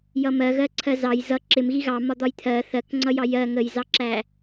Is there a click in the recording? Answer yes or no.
yes